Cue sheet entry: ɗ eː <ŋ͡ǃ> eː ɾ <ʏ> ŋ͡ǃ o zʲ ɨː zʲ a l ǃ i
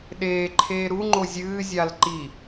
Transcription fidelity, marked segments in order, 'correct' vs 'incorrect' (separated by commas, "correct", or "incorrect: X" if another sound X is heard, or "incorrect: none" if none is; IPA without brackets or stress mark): incorrect: ǃʰ, incorrect: u